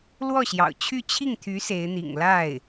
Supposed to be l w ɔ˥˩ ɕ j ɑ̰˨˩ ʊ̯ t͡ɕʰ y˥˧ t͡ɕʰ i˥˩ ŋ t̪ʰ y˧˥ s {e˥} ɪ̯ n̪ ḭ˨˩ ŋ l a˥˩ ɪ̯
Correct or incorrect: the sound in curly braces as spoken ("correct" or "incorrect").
incorrect